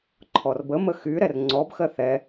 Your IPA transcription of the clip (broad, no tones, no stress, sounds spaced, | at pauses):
ǃʰ ɔ r b ə m ə x y ɾ ɛ r ŋ͡ǀ ɔ b x ɜ θ ɛ